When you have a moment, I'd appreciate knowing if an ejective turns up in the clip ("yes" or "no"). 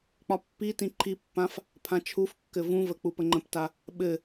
no